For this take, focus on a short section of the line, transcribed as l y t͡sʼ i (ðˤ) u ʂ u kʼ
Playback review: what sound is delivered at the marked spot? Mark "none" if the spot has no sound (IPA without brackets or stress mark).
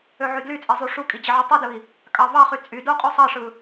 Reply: zˤ